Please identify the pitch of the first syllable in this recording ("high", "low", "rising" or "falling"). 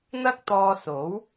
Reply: high